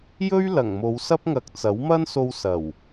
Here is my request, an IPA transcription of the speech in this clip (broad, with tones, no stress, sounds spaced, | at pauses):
j ɵ˥ ɥ l ɐ˨˩ ŋ m o˨˧ w s ɐ˥ p̚ ŋ ɐ˨ k̚ t͡s ɐ˨˥ w m ɐ˥ n s o˧ w s ɐ˨˩ w